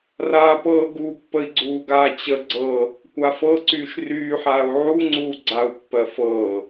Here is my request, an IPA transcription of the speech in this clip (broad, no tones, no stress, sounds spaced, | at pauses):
r aː p ɤː ɡ u pː ə i̯ ɡ͡ǀ uː ɡ aː t͡ɕ ə ɡ͡ǀ ɤ | kʷ a f ɤ ǀ yː ʃ r yː ħ aː u̯ ʕ u ŋ͡ǀ uː ɡ͡ǀ a u̯ pː ɜ f ɤː